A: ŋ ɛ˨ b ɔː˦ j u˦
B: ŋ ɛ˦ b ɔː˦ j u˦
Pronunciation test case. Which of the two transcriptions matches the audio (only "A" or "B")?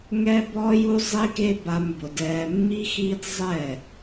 B